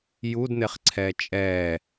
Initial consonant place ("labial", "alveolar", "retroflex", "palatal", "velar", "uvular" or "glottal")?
palatal